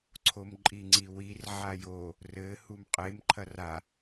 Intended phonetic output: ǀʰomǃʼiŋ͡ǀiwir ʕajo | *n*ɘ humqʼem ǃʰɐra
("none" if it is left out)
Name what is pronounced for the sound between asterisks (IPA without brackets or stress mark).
r